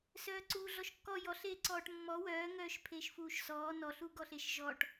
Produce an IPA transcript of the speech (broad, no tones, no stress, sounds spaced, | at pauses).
s œː ǀ uː ɮ ɔ ʃ kː ɔ j ɔ ɬ eː ǀ ɔː ʈ mː ɔ w œː ŋ œː ʃ pʰ eː ʃ f uː ʃ s ɔː n ɔ ɬ u ɡ ɔ ɬ e ʃ ʒ ɔ ʈ